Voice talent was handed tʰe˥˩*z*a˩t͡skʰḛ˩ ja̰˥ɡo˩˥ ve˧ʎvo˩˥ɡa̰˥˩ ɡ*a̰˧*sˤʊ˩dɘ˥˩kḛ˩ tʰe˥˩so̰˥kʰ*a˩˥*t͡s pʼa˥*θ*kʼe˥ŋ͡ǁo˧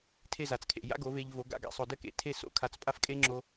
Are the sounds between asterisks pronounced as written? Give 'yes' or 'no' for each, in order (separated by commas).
yes, yes, yes, no